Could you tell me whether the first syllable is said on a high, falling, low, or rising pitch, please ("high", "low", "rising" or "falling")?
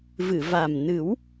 low